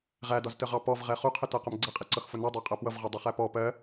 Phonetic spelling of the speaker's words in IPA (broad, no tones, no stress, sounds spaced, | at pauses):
ʁ æ d ɒ z t ə ʁ ɑ p ɔ v ʁ ɛ χ u qʰ ɪ t ɜ q ʊ m ɡ͡ǀ ɛ qʼ i ǀ ʌ x f ʊ n i dˤ æ qʼ ɜ p w ʌ v ʁ ɜ dˤ u χ æ p ɔ p ɜ